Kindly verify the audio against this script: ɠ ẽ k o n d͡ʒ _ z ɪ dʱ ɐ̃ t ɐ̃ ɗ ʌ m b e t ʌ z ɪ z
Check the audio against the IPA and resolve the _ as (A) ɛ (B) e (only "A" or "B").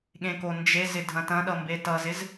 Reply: B